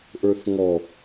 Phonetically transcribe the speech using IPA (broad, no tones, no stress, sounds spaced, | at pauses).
ʔ ə˞ θ ŋ ɔ